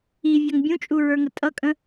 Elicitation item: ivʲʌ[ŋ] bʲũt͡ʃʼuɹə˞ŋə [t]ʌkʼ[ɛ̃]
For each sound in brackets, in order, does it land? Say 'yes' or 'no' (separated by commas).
yes, no, no